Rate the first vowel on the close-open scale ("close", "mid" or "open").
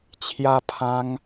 open